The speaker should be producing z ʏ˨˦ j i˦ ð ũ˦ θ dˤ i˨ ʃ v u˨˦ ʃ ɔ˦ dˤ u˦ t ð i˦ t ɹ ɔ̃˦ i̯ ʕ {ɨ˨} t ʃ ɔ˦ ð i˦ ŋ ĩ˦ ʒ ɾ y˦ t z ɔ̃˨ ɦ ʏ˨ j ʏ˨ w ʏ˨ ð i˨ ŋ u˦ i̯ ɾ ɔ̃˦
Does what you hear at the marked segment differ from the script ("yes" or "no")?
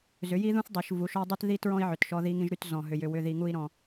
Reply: yes